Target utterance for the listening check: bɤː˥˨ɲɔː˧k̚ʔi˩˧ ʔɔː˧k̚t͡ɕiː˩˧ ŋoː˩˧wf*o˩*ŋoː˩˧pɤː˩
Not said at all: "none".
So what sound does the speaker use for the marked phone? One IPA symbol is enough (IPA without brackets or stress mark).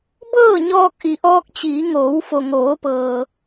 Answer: o˩